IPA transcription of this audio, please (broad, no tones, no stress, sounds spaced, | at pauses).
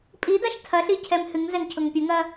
pʼ i d a ʃ tʰ ɐ ɬ i cʰ ɛ m h ɨ ŋ z ɛ ŋ cʰ ʊ ŋ pʲ ə ŋ ɐ